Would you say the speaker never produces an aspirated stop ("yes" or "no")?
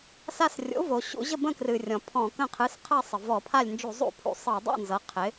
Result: no